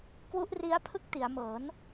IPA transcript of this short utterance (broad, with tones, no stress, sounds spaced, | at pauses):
k w u˦˥ ʔ r i˦˥ a̯ pʰ ɯ˥˩ k̚ t i˩˦ a̯ m ɤː˩˦ n